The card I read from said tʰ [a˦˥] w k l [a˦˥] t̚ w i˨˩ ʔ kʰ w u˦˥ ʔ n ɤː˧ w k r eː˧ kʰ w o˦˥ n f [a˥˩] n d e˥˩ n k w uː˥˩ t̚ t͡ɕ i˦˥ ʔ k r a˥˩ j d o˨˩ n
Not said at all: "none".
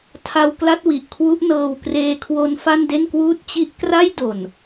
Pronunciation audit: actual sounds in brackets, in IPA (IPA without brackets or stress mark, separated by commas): a˦˥, a˦˥, a˥˩